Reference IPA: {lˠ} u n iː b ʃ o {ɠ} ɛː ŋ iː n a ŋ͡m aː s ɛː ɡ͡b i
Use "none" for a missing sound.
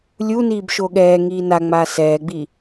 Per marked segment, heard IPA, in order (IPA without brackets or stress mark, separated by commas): lʲ, ɠ